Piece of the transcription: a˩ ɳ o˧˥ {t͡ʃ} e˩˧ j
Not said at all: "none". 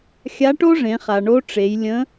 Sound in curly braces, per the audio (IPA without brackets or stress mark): ʈ͡ʂ